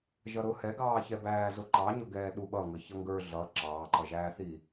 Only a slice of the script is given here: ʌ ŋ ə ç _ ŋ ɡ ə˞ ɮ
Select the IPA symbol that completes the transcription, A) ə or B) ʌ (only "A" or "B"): B